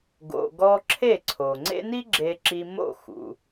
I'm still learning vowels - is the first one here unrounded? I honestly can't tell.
no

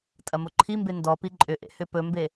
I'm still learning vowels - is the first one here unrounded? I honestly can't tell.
yes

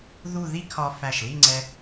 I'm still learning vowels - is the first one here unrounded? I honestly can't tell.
no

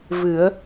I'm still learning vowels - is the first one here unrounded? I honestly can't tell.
yes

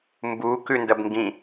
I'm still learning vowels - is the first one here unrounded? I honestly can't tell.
no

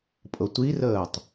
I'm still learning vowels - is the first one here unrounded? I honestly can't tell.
yes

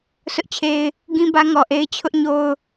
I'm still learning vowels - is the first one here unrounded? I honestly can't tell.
no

